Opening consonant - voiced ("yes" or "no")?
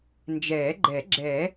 yes